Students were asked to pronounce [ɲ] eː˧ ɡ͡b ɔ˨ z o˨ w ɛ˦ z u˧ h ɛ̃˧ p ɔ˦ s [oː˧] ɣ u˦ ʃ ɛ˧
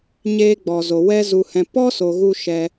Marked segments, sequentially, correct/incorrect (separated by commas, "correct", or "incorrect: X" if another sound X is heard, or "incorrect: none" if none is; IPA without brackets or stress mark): correct, incorrect: o˧